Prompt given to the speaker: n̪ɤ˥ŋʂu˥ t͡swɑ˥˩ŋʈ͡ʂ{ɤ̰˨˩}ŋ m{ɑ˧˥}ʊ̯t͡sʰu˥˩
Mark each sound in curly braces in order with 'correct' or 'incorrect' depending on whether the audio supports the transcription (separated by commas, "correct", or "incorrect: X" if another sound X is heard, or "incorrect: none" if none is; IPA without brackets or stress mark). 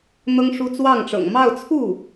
correct, incorrect: ɑ˥˧